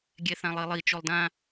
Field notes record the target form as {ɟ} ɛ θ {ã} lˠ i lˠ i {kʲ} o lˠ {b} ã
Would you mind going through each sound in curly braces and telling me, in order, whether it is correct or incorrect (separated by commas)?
incorrect, correct, incorrect, incorrect